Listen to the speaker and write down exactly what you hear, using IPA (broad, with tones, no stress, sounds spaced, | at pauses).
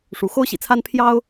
ʂ u˧˥ x o˥ ʊ̯ ɕ ḭ˨˩ t͡sʰ a˥ n pʰ j ɑ˥ ʊ̯